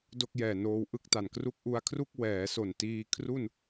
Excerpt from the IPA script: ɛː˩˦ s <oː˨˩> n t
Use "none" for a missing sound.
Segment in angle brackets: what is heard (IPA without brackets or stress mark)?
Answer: o˨˩